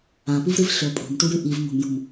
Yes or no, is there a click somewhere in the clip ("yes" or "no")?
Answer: no